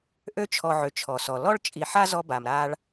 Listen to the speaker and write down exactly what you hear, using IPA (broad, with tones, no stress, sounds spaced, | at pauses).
ʔ ø˦ t͡ʃʰ ɔ˨ ʕ ø˩ t͡ʃʰ ɔ˩ s ɔ˩ l ɔ˥ ɭ t͡ʃʼ i˨ ħ a˥ z ɔ˦ b a˩ m ɾ a˦ ɭ